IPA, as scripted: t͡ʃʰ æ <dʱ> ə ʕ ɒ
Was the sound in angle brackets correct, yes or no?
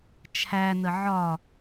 no